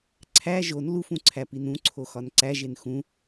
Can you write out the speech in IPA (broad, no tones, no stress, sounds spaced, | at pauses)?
ǀʰ æ ʒ o n l u f ũ ǀʰ æ p i n ũ ǀʰ o x ɒ n ǀ æ ʒ e n x ũ